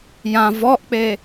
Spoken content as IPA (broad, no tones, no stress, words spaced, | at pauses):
jã vɔʔk͡pe